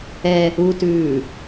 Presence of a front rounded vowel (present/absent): absent